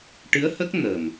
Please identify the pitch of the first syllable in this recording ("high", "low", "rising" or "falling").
rising